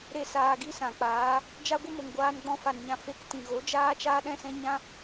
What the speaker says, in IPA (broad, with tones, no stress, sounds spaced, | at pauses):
ɾ e˦˨ s aː˧ ɡ i˦ s ã˨ k͡p aː˨˦ | d͡ʒ a˦ ɡʷ ə˦ m o˨ ŋ ɡʷ aː˧ n ɡ͡b ɔ̃˧ f a˨ n ɲ ã˨ f e˧ k t ĩ˨ ɣ o˨˦ d͡ʒ aː˦ t͡ʃ aː˦ ɗ ɛ̃˦ s ɛ̃˦ ɲ ã˦